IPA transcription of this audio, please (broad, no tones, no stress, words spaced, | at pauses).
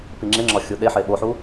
piŋ͡ǁeŋ͡ǁɒ xʲuɗeħe ɓoħu